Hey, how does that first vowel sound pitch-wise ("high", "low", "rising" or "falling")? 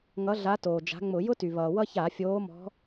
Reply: rising